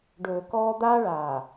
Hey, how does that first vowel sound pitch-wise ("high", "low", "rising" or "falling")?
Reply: low